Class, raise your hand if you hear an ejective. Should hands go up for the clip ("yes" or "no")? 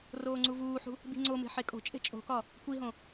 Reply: yes